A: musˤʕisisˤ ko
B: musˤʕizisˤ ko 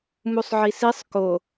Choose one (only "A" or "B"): A